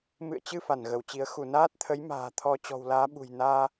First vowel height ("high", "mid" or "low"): high